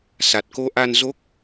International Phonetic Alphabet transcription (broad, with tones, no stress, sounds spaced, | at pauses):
s a˨˩ t̚ k o˧ ʔ a˧ n z o˦˥ k̚